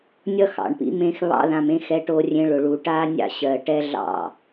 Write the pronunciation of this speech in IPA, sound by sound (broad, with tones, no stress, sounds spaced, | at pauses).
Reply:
nʲ ʌ˦ x ɑ̰˨ ɳ p ḭ˦ m ẽ˧ x β ɑ̰˧ ð ã˨ m ẽ˧ x ɛ˧ ʈ o˧ rʲ ẽ˧ ɭ ʊ˨ ɭ u˨ ʈ a˦ nʲ ɑ̰˦ ɕ ɜ˨ ʈ ɛ˦ ɮ ɑ̰˦˨